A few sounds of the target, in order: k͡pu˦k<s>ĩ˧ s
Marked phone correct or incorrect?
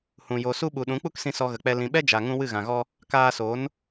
correct